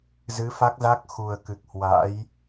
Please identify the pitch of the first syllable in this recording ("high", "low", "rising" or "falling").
rising